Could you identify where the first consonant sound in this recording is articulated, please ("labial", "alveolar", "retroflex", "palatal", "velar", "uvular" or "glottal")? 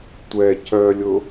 alveolar